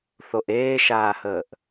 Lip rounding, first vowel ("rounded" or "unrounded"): rounded